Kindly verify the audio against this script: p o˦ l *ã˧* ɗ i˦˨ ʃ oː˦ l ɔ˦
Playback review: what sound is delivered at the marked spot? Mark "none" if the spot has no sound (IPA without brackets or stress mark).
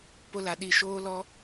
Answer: a˧